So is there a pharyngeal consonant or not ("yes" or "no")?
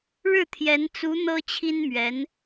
no